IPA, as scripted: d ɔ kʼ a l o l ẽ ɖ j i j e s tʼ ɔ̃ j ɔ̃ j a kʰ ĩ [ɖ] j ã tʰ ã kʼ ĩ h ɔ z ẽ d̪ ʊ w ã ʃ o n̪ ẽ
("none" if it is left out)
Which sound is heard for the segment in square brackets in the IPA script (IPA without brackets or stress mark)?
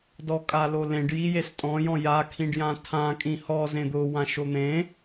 ɖ